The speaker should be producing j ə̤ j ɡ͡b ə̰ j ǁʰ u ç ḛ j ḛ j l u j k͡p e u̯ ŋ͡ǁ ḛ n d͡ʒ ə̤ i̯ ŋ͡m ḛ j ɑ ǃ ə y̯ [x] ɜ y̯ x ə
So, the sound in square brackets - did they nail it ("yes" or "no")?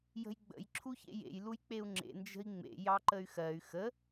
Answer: yes